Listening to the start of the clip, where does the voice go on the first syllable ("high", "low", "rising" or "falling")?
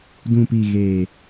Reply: low